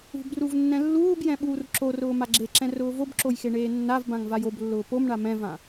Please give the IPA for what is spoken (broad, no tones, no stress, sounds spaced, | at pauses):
ṳ b r u v nː ɛ̃ lː uː b j ɛ̃ ɓ uː r ǁ o r ʊː m a ɡ͡ǁ e ǁ ɛ̃ r ʊː v o b ǁ o j x e ɳ eː nː a v b ã ŋ v a j o b lː ʊː p o m ɳ a m ɛ̃ v ã